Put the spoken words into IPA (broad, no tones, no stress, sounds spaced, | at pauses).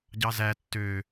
ɟ ɑ z æ tː ø